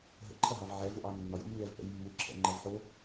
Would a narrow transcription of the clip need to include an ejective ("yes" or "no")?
no